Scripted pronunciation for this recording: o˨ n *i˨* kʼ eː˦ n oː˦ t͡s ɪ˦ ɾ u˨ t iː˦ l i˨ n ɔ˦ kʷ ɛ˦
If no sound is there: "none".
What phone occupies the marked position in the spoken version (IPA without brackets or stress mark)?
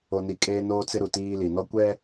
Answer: i˨